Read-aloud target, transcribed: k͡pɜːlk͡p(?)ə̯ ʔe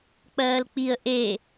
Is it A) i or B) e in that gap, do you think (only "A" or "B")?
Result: A